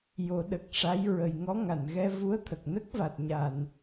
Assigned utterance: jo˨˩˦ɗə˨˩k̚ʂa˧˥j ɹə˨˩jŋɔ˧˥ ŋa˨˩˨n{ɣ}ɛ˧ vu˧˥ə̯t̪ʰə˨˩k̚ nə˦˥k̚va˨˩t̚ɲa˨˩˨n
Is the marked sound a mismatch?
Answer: no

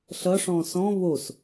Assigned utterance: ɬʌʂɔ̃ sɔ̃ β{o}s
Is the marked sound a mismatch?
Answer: no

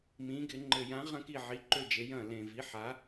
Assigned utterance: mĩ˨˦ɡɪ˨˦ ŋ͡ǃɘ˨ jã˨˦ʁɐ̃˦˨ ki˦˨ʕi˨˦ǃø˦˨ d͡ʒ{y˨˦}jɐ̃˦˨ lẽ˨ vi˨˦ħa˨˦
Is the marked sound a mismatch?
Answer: yes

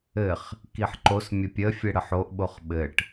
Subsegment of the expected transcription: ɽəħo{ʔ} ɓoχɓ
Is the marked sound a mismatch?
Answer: no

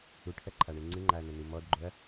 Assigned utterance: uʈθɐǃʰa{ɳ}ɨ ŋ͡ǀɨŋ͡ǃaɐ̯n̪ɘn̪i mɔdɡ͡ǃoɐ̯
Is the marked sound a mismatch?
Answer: no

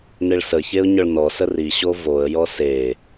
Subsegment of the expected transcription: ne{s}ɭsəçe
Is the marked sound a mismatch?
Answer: yes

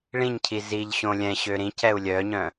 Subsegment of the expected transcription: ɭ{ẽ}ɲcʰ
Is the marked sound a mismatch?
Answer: yes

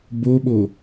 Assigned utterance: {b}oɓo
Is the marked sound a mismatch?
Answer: no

